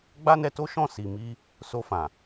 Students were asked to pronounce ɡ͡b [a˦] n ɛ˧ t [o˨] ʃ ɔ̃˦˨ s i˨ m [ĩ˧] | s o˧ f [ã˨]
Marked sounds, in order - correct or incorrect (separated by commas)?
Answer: correct, incorrect, incorrect, correct